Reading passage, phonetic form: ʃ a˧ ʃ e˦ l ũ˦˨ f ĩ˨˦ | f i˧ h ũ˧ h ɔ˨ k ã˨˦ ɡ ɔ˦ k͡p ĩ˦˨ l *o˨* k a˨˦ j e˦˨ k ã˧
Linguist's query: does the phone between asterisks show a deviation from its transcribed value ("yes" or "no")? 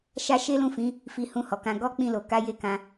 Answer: no